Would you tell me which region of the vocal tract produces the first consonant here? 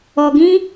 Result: velum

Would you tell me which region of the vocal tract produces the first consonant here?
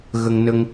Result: velum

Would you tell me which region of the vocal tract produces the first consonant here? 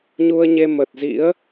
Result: palate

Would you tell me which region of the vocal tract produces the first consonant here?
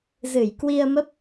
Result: tongue tip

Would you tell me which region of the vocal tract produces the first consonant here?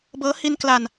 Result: lips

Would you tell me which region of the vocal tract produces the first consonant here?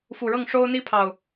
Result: lips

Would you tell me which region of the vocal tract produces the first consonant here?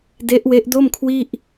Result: tongue tip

